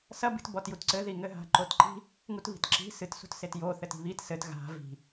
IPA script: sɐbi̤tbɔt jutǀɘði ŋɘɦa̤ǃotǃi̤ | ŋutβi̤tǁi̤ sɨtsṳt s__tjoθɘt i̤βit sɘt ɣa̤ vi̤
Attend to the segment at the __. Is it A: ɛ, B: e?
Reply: B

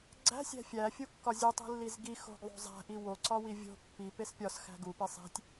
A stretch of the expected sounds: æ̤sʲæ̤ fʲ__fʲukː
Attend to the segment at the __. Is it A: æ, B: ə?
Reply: A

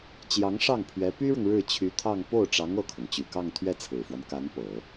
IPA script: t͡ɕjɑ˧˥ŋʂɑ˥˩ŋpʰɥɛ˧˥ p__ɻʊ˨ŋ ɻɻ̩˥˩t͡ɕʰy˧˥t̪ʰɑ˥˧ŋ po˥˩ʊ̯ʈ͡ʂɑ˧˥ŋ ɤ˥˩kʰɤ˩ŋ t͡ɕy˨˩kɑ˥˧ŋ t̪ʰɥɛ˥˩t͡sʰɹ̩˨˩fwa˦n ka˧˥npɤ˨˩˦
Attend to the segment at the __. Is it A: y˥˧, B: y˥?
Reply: B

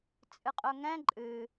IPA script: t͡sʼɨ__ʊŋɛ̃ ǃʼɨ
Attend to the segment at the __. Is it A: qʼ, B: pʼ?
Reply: A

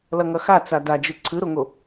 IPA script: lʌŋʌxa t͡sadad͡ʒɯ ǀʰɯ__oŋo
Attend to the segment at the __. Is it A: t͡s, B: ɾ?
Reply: B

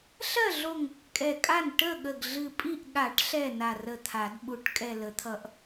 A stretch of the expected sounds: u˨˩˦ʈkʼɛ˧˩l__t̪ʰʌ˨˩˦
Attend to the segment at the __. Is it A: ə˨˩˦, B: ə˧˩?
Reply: A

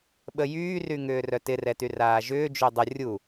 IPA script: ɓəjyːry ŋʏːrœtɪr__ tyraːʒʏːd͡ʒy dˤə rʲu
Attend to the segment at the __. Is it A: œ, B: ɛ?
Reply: B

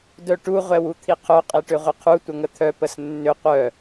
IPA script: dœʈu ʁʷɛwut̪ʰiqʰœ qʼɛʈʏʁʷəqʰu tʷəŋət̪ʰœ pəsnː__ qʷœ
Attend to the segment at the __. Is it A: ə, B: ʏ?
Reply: B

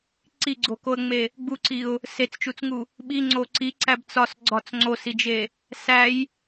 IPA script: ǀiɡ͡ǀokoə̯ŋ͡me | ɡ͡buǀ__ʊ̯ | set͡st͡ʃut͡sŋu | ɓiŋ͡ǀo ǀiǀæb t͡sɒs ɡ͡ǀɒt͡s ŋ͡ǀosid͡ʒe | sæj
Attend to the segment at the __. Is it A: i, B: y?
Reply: A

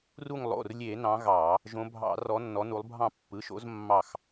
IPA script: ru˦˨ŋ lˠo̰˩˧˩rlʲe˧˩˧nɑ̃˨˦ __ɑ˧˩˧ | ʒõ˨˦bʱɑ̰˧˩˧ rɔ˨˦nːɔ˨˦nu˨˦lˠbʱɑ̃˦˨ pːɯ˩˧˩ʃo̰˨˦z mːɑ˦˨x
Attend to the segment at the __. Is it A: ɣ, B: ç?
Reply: A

